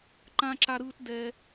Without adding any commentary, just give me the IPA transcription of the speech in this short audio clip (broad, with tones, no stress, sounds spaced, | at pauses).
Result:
ǃ ã˥ ǁ a˦ ɾ ɯː˦ t d ɛ˨